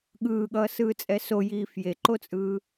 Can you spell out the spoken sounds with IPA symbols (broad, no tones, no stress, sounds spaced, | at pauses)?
ɠ ɯː ɠ ʌː s ɯː t͡sʼ ɛ s o j iː f j e ǃ o t͡sʼ ɯː